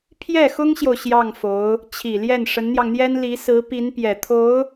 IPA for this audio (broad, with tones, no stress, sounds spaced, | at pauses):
pʰ j ɛ˥˩ x ʊ˥ ŋ ɕ j o˨ ʊ̯ ɕ j ɑ˥˩ ŋ f o˧˥ ʊ̯ | t͡ɕʰ i˨˩ l j ɛ˥˩ n ʂ ə˧˥ n n̪ j ɑ˧ ŋ n̪ j ɛ˥ n l i˧˥ s ɹ̩˧˥ p i˧˥ n p j ɛ˨˩ t̪ʰ o˧˥ ʊ̯